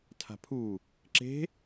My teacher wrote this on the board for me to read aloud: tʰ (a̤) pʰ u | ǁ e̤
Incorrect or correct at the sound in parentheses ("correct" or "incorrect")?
correct